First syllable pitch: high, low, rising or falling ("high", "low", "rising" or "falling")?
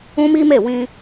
high